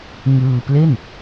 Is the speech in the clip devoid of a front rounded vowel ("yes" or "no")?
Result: yes